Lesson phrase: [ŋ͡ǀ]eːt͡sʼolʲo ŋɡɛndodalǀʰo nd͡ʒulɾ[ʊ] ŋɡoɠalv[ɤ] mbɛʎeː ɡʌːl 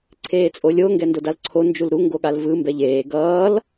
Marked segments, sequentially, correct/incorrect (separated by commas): incorrect, incorrect, incorrect